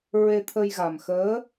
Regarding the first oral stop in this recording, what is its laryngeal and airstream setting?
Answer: aspirated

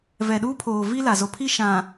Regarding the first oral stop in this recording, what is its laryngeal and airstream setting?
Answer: implosive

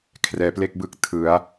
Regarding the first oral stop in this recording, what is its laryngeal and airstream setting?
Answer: aspirated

